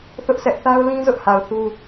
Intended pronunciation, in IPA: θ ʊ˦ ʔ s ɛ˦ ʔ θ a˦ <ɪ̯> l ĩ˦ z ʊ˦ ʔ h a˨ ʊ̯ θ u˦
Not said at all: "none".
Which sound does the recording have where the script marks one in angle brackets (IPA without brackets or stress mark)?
ʊ̯